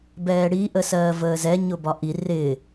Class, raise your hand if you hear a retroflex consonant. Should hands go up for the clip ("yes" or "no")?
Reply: yes